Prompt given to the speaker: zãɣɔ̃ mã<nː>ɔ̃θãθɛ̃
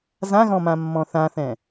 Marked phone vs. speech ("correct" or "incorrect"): incorrect